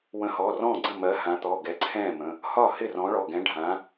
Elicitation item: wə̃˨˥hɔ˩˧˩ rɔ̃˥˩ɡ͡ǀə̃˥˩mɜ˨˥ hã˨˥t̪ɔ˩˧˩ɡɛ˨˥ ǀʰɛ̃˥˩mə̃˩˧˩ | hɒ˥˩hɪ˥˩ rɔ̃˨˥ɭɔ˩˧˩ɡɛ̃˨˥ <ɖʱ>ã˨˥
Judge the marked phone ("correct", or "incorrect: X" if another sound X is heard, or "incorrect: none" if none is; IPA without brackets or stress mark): correct